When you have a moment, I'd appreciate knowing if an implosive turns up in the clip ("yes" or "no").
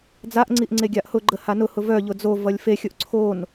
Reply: no